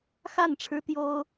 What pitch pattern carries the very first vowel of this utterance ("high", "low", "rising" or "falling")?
falling